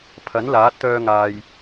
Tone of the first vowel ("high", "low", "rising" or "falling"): rising